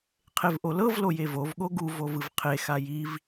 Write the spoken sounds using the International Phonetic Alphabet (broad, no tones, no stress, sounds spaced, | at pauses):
qʰ e v ʔ o l ɤ v l o j e v o v ɠ o ɡ u v o v ɯ v qʰ e x a j i v